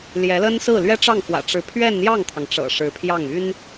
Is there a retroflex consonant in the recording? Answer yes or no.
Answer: yes